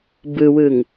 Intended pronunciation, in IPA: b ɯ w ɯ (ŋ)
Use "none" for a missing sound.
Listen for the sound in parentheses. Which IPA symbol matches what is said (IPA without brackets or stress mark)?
ŋ